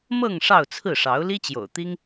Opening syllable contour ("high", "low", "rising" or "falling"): falling